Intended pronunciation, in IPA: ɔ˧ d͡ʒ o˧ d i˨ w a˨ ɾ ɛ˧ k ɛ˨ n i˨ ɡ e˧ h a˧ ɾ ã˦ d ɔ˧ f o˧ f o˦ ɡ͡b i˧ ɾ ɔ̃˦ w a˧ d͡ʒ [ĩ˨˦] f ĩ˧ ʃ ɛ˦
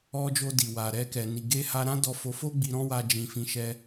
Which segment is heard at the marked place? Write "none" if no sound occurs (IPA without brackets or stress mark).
ĩ˧